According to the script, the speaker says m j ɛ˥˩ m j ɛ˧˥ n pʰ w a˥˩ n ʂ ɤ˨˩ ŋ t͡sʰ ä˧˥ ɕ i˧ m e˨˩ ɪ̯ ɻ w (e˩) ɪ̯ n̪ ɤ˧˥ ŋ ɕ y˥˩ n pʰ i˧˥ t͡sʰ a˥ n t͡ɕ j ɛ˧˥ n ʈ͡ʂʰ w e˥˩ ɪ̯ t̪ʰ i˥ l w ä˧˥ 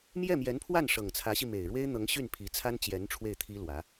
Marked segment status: incorrect: e˥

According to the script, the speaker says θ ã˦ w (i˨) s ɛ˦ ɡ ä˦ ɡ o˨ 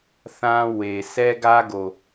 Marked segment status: incorrect: e˨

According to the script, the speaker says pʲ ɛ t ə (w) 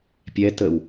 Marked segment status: correct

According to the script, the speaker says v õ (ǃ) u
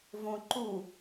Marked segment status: correct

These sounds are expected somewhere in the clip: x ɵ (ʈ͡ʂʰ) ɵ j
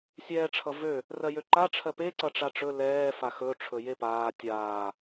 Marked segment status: correct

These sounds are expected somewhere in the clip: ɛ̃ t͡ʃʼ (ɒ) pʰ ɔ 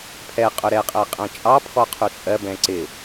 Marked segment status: incorrect: ɑ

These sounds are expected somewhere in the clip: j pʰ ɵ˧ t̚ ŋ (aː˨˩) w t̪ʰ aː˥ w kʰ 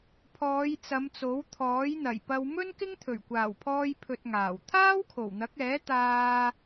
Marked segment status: correct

